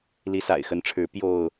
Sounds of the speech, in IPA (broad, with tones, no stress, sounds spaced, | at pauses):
l i˨˦ s a̰˨˩ ɪ̯ x ə˨˦ n ʈ͡ʂʰ ɻ̩˨˦ p j o˥˨ ʊ̯